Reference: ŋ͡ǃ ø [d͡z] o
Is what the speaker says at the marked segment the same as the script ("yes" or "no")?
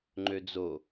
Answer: yes